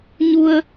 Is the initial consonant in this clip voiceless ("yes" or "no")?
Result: no